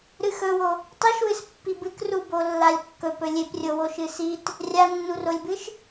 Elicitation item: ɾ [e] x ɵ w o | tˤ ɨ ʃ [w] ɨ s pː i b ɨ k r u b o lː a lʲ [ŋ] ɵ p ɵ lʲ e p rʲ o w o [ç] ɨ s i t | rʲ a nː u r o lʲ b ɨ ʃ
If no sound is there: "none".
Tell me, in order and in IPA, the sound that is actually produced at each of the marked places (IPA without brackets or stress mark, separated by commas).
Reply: ɨ, w, kː, ʃ